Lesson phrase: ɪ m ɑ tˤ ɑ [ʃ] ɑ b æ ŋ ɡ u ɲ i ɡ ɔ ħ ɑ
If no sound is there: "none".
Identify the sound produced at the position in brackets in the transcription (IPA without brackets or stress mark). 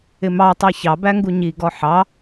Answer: ç